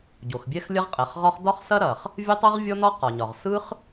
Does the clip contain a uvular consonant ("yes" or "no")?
yes